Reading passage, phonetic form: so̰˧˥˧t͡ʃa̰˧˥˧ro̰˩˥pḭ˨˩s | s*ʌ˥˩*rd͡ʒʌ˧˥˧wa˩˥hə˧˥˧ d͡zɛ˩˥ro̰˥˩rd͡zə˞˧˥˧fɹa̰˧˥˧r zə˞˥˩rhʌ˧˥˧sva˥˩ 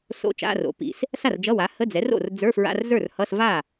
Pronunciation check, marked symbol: incorrect: a˥˩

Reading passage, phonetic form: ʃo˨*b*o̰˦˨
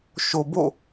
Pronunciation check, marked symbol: correct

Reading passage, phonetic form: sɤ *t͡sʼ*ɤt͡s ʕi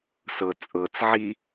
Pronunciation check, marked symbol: correct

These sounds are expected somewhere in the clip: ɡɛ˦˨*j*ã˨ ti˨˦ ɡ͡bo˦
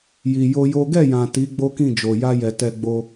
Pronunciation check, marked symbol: correct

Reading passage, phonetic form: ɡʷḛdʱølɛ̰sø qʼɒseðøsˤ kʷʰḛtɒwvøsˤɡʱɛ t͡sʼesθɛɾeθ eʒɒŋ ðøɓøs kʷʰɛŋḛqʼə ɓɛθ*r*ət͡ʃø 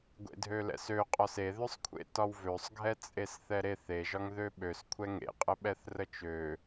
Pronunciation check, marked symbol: correct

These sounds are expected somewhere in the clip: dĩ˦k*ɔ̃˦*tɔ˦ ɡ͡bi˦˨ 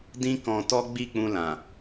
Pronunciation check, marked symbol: incorrect: ɔ̃˧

